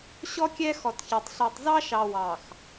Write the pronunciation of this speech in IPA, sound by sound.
ɕɔ˦kʲɛ˦ xɔ˨tçɑ˨tˤ ɬɛ˨tˤzɑ˦ʃɑ˨ wɑ˨x

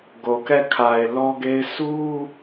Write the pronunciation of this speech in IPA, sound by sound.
ɡo˨kɛ˦˨kʰa˨ɪ̯ lɔ˦ɡe˦ɪ̯ sʰu˦

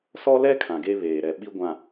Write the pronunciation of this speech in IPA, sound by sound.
sɔ˦lɛ˦ kʰã˨ɡe˦βeː˨ɾɛ˨ ɓi˦ɡʷã˨

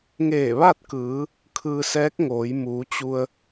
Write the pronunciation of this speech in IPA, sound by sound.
ŋeː˧˩ʋa˥˨t̚kɯː˩˧ | kʰɯː˧sɛː˧˥k̚ ŋoː˩˧jmuː˩˧ t͡ɕu˧ə̯

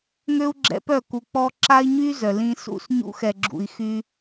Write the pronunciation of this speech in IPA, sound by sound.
ŋø˦u̯ɡ͡ǁɛ̰˧pœ˦˨ku˨ k͡pɔ˧ ǁa˦i̯ɲy˦ zœ˨lĩ˦ sṵ˧sɲṵ˧xɛ˨ɡ͡ǁṵ˨i̯ xy˦

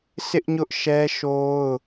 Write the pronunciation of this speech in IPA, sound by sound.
sɪ˦ʔɲʊ˦ʔʃɛ˦ʃo˦ʊ̯

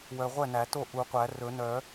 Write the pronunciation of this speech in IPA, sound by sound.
wœ˨ ʁʷɛ˥˩næ˨˩˦to˥˩ ʔu˨˩˦qʷæ˨˩˦rɵ˨˩˦ nœ˨˩˦

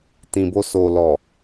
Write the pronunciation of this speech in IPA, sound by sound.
tĩ˨bo˧ so˨lɔ˨

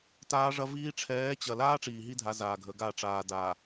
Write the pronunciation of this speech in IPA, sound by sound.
taː˦ʐɐ˦viː˦ ʈ͡ʂʰɛː˨˦t͡ɕɐ˨laː˦ ʈ͡ʂiː˨ɦi˦dʱa˨˦ zaː˨ɡʱə˨˦ɡa˦˨ ʈ͡ʂaː˨daː˨

